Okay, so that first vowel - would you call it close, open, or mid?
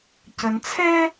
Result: mid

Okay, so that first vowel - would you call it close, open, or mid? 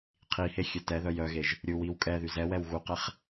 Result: close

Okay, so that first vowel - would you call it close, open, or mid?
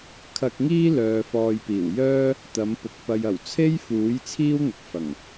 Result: open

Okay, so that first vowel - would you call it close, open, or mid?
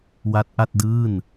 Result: open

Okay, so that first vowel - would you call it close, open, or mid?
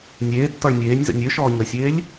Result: mid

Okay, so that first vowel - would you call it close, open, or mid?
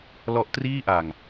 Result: mid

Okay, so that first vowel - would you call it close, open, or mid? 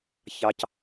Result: open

